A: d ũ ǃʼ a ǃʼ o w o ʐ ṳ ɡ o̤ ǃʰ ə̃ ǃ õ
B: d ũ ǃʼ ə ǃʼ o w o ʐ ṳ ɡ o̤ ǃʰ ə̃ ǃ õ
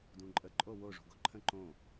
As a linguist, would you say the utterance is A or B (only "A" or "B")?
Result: B